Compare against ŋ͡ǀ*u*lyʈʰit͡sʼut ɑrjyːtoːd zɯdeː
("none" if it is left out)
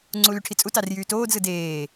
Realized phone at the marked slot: u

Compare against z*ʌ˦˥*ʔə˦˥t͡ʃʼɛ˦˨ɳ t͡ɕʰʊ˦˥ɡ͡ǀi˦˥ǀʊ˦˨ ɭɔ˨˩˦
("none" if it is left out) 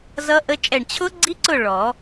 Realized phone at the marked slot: ʌ˦˥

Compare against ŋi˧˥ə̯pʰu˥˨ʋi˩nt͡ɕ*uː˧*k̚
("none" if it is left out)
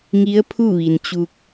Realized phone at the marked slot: u˧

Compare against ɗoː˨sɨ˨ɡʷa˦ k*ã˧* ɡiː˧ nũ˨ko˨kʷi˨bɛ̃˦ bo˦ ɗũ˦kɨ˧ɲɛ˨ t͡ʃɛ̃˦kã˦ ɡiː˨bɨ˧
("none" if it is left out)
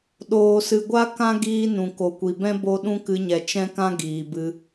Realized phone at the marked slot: ã˦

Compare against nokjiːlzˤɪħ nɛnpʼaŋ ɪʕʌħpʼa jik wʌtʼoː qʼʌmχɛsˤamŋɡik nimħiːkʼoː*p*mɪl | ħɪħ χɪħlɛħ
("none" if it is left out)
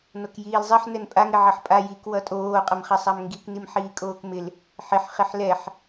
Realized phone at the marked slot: k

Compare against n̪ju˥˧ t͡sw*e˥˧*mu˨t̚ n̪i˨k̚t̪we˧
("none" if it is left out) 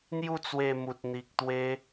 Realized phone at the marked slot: e˧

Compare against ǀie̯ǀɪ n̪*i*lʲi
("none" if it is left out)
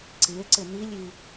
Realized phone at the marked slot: i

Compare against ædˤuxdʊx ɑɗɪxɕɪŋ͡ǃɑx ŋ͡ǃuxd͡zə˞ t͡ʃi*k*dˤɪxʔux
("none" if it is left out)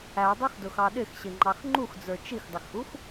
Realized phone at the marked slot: x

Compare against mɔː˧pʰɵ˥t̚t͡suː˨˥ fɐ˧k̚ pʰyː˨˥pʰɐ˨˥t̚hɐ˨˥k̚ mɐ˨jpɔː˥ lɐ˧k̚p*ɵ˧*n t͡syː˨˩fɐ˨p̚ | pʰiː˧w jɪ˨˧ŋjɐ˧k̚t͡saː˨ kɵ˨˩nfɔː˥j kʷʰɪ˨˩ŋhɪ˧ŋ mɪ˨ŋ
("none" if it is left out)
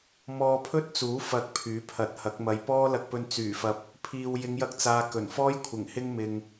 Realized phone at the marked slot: ɵ˧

